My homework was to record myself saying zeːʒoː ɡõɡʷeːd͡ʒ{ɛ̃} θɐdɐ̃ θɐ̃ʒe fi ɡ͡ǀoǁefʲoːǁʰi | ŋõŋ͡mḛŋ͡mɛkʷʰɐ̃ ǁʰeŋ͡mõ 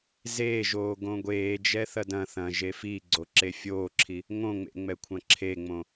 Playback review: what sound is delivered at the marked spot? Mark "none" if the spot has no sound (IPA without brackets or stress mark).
ɛ